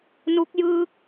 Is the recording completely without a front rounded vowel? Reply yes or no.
yes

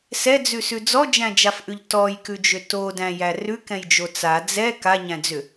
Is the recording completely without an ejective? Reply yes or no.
yes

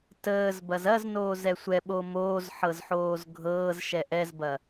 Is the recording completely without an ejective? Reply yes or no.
yes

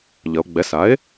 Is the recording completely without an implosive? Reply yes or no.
yes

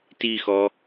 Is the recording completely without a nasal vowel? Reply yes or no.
yes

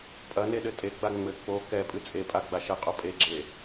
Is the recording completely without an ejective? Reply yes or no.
no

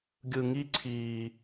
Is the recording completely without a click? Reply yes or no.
no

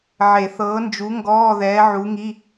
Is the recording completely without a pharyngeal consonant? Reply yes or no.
no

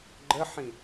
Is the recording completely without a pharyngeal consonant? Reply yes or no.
no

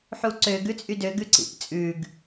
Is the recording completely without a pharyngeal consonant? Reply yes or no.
no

